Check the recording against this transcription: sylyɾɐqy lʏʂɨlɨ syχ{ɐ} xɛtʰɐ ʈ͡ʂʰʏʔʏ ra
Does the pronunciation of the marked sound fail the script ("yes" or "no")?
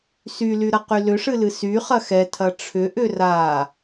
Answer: no